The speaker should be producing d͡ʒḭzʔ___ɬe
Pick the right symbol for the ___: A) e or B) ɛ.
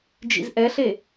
B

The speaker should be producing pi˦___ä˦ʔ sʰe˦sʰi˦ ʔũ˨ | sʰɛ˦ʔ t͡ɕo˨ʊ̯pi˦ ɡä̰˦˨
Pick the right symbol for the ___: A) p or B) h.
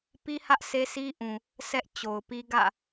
B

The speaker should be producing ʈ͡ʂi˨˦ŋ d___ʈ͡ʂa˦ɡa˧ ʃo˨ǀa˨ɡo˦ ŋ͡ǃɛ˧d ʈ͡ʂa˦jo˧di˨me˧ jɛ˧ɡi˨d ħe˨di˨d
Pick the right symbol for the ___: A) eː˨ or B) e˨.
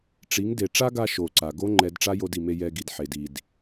B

